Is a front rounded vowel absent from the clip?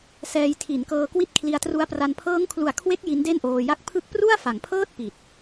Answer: yes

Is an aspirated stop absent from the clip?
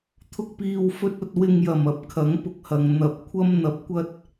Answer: no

